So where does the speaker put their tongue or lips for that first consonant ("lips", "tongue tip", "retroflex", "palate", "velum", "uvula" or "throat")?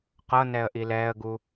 uvula